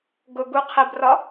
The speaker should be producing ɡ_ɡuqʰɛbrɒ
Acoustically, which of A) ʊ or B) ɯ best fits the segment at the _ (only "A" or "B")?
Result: A